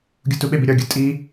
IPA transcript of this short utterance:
ɡʲ u t u ɓ e b i ɾʲ ɒ ɡʲ u tʼ i

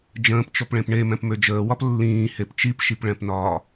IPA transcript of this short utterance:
d͡ʒ ə̃ː p t͡ʃ ɔ p ɭ ẽ p ɳ e m ɛ̃ p m ø d͡ʒ əː w ɒ p lː ĩː h e p t͡ʃ i p ʃ i p ɭ ɛ̃ p n ɒː

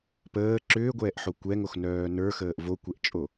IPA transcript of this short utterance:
p əː ǁ ʏː ɡʷ ɛː ʔ ħ o kʷ ɛ ŋ o x n œː n ə˞ x əː ʔ v o kʷ ɛ ʔ t͡ʃʼ o

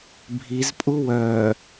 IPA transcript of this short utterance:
bʱ i z pʼ u w œ

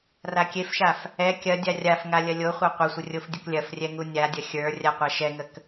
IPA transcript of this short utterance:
r a kʲ e f ʃ a f | ɛ kʲ ɐ dʲ a rʲ a f ŋ a lʲ ɐ lʲ o χʷ a qʷ ɐ sʷ ə rʲ o f dʲ ə k lʲ ɐ f rʲ ɛ ŋ u nʲ a dʲ ɐ xʲ ə˞ rʲ a qʷ a ʃ ɛ ŋ ə k

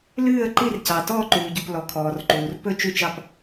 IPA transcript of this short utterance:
l ʉː˦˨ ə̯ ǃ i˦˨ r c ɑ˩ t ɔː˦˨ ǃ ʉː˩ ɟ u˩ p l ɔ˩ kʰ ɔː˩ r ǃ uː˩ r p ɵ˦˨ t͡ʃ ʉ˦˨ t͡ʃ ɑ˦˨ p

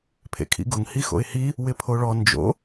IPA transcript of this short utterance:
pʰ ḛ kʰ ḭ ɡ ʊ ŋ h i x o̰ ɪ̯ h i | w ɪ pʰ o ɭ ɔ n d͡ʒ o̰

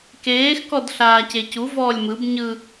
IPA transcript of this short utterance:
k eː x k ɔ d ɬ aː c e c u v ɔː lʲ m ɯ b ɲ ɯ

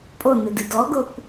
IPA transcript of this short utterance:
pʼ o n e d ɨ d ɔ ɡ o kʷ

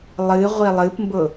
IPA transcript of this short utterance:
lˠ ɨ ʁʷ i lˠ ɨ p m b ʊ

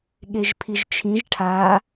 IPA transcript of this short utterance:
ɠ e ʒ pʰ i ʒ t͡ʃʰ ĩ ʒ ʈʰ a

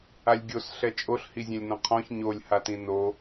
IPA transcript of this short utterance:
a lʲ ɡʲ o s ɬ ɛ t͡ʃʼ o ɬ h i zʲ ɛ̃ lʲ n ɔ̃ qʰ ɔ̃ ç ɲ o lʲ h a t ĩ n o

